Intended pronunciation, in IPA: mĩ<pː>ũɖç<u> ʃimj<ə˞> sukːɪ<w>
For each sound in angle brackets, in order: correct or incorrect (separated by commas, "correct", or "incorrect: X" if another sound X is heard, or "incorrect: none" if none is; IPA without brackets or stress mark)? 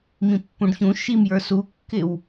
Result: correct, incorrect: ũ, correct, correct